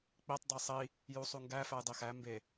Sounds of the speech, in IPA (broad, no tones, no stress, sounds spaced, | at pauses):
k͡p i tˤ dˤ i sˤ i | j u sˤ u ŋ ɡ æ f æ j dˤ i x æ m b e